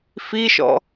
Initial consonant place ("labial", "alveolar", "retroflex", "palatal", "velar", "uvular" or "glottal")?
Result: labial